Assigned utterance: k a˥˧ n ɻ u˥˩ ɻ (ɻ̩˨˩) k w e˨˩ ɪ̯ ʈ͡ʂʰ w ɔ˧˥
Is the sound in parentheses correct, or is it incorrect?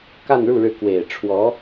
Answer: incorrect